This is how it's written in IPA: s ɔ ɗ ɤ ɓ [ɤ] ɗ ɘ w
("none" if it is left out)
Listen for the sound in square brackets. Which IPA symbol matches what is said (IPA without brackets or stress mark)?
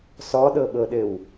ɤ